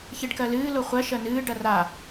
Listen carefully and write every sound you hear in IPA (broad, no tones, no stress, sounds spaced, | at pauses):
ç e ɖ k ɜ l ɨː l o χʷ ɜ ʃ ɜ n ɨː ɖ ɐ r a